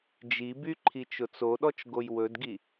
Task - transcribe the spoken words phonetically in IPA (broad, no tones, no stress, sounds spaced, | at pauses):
d͡ʒ i b y ǃʰ i t͡ʃ ʊ t͡s o ɗ ɔ t͡ʃ ɡ o j w ɵ d ɡ i